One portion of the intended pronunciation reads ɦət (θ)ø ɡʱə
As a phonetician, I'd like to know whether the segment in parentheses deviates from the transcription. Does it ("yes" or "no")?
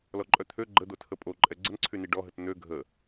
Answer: yes